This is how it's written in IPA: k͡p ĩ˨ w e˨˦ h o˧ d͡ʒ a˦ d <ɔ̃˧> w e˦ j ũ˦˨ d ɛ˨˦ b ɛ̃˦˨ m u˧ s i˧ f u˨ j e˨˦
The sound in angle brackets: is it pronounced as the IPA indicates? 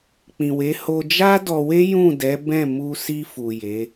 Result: no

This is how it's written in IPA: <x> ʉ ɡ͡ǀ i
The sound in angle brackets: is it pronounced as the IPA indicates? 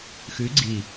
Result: yes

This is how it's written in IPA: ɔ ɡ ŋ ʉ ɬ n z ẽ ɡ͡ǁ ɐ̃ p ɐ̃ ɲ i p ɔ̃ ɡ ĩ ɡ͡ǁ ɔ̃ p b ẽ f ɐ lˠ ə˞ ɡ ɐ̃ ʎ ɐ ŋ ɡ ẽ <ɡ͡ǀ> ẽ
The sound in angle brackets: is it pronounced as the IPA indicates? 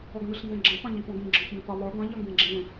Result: no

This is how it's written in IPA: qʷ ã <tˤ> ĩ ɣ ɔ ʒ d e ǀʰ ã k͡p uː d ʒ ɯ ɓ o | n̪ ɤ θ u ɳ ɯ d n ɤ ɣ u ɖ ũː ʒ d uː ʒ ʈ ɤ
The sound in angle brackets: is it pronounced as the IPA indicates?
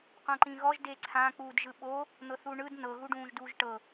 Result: no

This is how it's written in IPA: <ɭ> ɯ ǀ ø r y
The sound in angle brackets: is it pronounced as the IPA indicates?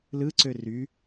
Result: no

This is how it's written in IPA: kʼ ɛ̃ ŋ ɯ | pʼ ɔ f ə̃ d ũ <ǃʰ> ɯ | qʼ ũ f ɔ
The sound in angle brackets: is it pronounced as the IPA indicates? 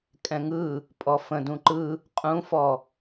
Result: no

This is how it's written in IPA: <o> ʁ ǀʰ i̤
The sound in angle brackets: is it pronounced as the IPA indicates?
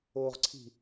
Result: yes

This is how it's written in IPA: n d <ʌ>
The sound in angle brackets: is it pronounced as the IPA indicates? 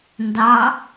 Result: no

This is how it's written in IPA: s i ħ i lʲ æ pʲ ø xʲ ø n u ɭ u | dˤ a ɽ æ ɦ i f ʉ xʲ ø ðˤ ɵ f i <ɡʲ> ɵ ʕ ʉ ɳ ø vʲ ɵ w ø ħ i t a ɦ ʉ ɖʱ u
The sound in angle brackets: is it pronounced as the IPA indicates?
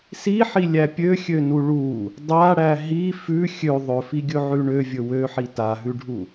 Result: yes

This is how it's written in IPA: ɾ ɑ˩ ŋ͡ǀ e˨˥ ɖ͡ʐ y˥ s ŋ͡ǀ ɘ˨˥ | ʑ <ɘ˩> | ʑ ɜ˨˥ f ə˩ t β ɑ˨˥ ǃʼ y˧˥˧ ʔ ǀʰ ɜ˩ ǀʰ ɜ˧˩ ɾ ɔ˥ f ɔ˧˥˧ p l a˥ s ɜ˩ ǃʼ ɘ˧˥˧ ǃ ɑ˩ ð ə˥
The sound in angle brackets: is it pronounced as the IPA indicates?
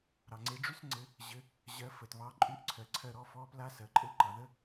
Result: no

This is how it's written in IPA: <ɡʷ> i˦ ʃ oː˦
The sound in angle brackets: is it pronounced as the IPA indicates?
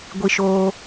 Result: yes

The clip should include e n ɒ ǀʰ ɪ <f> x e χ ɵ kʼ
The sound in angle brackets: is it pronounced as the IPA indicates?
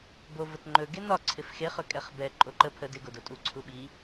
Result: yes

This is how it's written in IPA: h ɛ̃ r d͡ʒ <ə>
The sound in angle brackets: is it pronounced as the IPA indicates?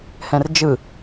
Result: no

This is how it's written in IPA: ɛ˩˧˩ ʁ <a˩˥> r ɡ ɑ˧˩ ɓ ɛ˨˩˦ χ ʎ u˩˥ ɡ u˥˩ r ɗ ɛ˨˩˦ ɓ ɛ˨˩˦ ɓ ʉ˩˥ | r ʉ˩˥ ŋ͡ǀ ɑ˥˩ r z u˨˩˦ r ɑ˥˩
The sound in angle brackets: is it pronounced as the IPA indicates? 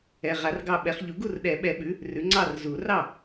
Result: no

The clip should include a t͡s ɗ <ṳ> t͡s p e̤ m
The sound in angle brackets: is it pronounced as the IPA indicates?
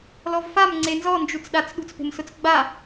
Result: yes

